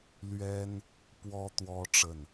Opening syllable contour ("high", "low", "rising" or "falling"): high